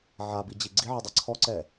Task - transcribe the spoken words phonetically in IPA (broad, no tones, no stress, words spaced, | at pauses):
ʕabid͡ʑi ɡ͡ǀiʕidˤa ǀʰɔǀɛ